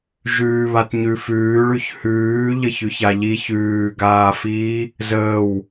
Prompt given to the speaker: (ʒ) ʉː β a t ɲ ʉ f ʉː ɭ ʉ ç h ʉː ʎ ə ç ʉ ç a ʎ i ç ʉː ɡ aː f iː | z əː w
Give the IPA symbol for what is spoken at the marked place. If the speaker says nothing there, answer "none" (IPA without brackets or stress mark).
ʒ